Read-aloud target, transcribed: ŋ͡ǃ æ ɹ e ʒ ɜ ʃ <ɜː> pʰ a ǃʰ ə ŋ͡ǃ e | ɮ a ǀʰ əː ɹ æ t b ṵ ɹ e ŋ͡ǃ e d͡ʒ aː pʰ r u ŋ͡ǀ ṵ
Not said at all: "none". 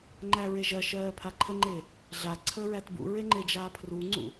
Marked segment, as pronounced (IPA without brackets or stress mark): ɜː